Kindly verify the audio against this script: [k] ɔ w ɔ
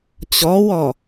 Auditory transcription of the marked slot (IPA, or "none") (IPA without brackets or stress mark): t͡ɕ